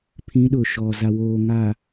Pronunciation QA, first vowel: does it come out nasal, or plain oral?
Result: nasal